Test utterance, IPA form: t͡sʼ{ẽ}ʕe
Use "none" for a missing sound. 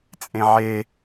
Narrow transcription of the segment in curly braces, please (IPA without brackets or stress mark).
ẽ